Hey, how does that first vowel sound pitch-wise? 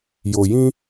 low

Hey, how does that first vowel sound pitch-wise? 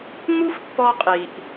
high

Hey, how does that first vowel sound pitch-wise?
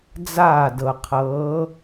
falling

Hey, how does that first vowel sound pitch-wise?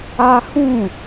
high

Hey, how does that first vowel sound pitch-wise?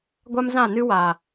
high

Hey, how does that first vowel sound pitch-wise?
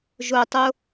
low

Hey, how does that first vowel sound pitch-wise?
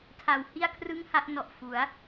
low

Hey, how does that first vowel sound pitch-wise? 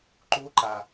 rising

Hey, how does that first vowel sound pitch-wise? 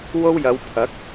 high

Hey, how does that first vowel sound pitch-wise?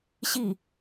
falling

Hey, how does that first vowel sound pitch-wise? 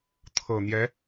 low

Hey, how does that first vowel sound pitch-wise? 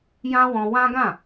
high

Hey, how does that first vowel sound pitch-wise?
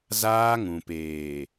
high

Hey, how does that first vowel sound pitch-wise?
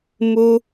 high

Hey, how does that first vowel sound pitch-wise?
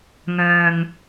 low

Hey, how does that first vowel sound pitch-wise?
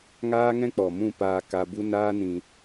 high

